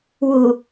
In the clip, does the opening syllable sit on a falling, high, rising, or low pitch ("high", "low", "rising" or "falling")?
low